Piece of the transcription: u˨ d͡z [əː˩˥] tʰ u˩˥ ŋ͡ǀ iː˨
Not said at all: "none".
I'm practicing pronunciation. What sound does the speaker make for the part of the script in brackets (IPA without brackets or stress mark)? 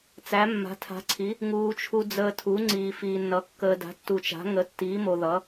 əː˨